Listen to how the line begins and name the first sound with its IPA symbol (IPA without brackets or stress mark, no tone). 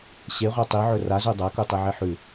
ɕ